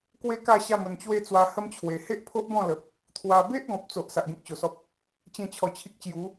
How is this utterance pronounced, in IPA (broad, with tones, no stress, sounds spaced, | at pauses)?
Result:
k w e˦ k a˥˧ ɕ a˥˧ m ə˧ n t͡ɕ w e˦ t͡s w a˧ h ə˦ m t͡ɕʰ w e˨˩ h e˦ ʔ pʰ o˦ ʔ b ɔ̃˥˧ l ə˨ p̚ | t̪ʰ w a˧ b e˦ ʔ ɡ ɔ̃˨ p̚ t͡s o˨ ʔ s a˨ ʔ ɡ ẽ˦ k̚ ɕ o˨˩ s ɔ˦ p̚ | t͡ɕ ẽ˥˧ t͡ɕʰ ɔ˧ t͡ɕʰ i˦ k̚ t͡ɕ j u˨˦